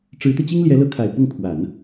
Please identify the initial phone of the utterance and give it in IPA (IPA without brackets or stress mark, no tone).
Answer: ʈ͡ʂ